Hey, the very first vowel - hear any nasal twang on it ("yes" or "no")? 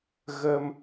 no